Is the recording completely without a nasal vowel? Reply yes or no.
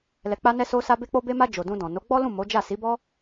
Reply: no